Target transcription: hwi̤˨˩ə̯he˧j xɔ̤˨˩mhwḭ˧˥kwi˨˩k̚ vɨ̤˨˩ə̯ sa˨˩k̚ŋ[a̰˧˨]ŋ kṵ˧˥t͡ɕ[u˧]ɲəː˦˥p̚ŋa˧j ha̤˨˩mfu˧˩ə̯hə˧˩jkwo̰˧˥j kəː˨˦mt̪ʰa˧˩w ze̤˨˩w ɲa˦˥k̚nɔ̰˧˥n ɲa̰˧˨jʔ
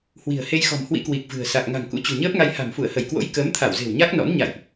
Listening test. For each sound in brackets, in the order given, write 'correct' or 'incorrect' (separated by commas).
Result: incorrect, incorrect